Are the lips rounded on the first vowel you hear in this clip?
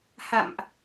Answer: no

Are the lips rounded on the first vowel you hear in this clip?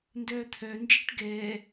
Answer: yes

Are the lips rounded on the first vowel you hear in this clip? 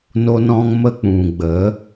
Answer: yes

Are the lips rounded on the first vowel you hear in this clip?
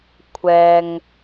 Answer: no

